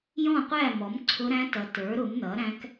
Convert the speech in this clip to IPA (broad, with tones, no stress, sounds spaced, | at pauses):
j ɔ̃˥˨ qʷ æ˥˨ m ɔ˩˥ m ǀʰ ʊ˦˥ ɾ æ̃˦˥ t ʌ˩˥ t ə˞˩˥ ɾ ʊ˩˥ m n ʌ˩˥ ɾ æ̃˦˥ k